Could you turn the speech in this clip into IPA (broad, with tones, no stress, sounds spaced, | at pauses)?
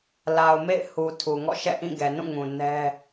l a˨ ʊ̯ m ḛ˦˨ ɪ̯ h u˨ tʰ u˨ ŋ ɔ̰˦˨ ʃ ɛ̰˦˨ ʔ ĩ˦˨ ɡ ɛ˨ n ũ˦˨ ŋ ũ˨ n ɛ˦